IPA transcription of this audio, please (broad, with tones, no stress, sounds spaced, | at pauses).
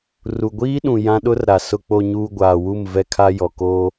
r u˨ ɡʷ iː˦ ɗ ũ˨ j ã˦ ɗ ʊ˦ r ɾ a˨ s ʊ˨ k͡p o˨ ɲ uː˨ ɡʷ aː˨ w u˦˨ m v ɛ˦ kʰ a˦ j ɔ˨ k oː˦